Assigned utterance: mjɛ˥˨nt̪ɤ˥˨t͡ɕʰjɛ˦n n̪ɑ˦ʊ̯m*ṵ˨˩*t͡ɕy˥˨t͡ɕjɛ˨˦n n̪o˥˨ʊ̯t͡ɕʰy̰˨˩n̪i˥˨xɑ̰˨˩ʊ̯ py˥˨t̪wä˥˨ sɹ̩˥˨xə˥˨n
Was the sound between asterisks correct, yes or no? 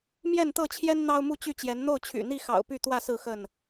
no